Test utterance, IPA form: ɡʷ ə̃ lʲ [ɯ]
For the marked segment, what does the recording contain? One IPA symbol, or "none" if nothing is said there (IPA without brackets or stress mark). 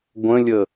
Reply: ə